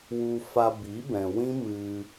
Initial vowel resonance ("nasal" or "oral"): oral